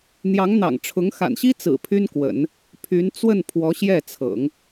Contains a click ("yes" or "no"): no